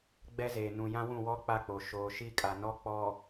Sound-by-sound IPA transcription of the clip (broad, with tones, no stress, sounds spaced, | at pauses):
ɡ͡b ɛ˦ z eː˨ n ũ˨ j ã˦ w ũ˦˨ w ɔ˦ k͡p a˦˨ k͡p o˨ ʃ oː˨ ʃ i˦ kʼ a˨ n ɔ˦ k͡p ɔ˨